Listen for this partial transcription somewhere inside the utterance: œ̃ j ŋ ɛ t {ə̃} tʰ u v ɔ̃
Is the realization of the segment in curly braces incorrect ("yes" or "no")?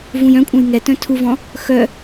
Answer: yes